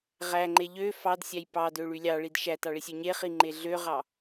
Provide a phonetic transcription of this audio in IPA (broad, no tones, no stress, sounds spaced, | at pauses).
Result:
ʁ æ ŋ͡ǃ e ʎ ø f ɑ d sʲ æ j p ɑ d ø ɭ y lʲ ɑ ɭ i d ʃ æ t ɑ ɭ i sʲ ø ɲ e χ i ŋ͡ǃ e ɮ ø ʁ ɑ